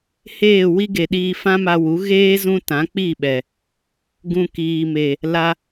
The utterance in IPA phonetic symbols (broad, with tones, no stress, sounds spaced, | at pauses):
h eː˦˨ w i˦ ɡ e˨ ɗ iː˧ f ã˦ m a˧ w u˨˦ ɣ eː˦ z ũ˧ t ã˨˦ k͡p i˦˨ ɓ ɛ˨ | ɡ ũ˨ k iː˨ m e˨ | l a˧